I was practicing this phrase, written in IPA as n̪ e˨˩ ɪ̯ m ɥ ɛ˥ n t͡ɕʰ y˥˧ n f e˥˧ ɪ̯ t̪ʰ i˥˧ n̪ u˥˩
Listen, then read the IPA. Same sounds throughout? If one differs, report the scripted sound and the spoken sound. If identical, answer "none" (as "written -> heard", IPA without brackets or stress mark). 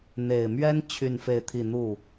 none